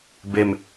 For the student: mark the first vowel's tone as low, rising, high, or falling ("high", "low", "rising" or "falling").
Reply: low